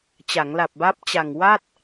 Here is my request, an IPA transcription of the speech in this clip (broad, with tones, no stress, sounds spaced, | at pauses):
t͡ɕ a˩˦ ŋ l a˨˩ p̚ b a˦˥ p̚ t͡ɕ a˨˩ ŋ w a˥˩ t̚